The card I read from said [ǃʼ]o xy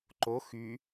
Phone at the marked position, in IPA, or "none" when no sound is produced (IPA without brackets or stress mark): ǃ